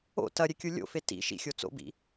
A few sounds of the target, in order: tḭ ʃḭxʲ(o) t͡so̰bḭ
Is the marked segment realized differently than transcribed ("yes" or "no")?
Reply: no